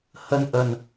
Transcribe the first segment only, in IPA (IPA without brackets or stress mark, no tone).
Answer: h